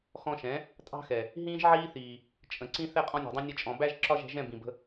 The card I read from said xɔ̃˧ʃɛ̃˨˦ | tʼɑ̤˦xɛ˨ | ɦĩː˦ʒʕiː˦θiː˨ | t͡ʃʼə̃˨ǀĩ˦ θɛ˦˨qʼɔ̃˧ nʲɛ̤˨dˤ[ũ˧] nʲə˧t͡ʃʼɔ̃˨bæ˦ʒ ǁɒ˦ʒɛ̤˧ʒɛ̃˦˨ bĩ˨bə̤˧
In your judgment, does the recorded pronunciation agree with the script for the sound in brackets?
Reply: yes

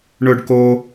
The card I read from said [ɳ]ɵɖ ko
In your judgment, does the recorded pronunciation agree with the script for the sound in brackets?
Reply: yes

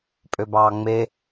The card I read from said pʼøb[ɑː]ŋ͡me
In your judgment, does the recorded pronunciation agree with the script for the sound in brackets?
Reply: yes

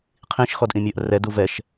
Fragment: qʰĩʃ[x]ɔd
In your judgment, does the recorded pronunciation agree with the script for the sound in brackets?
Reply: yes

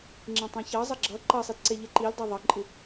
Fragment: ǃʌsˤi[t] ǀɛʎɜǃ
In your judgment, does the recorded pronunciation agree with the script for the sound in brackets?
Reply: yes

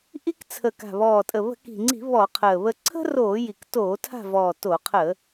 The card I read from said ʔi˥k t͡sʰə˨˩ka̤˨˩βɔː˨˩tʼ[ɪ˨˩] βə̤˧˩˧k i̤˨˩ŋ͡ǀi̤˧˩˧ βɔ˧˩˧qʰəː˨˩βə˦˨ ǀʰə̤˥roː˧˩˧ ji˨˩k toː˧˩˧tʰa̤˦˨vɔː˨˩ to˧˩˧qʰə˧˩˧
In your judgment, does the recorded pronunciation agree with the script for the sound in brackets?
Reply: no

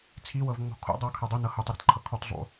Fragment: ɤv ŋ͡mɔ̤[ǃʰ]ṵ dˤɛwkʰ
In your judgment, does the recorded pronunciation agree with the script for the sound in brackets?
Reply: no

